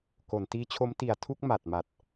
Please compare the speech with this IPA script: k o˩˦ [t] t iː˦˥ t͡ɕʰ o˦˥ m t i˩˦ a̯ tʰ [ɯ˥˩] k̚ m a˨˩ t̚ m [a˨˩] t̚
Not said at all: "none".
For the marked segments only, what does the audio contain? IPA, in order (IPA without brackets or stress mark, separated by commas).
n, u˥˩, a˨˩